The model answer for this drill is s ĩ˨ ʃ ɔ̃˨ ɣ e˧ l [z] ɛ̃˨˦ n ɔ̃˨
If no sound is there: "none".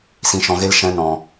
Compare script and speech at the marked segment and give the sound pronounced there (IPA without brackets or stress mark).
ʃ